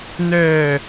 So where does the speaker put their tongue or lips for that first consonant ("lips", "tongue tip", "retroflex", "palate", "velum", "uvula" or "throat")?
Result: tongue tip